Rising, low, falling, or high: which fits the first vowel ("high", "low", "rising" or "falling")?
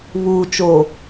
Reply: low